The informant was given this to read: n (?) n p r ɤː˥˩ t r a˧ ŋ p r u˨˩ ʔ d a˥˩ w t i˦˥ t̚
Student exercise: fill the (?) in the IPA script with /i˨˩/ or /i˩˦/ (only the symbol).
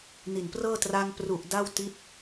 i˨˩